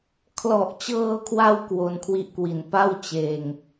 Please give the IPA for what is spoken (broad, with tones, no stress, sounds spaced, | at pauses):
kʰ l ɔ˨˩ ʔ t͡ɕ ɤː˧ kʰ w a˧ w k w o˧ n kʰ w i˦˥ ʔ k w i˨˩ n p a˥˩ w t͡ɕ eː˧ ŋ